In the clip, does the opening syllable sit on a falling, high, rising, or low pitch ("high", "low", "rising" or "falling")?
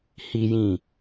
high